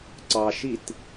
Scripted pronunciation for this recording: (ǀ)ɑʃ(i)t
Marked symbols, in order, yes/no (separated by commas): yes, yes